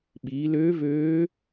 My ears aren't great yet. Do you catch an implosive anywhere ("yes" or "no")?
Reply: yes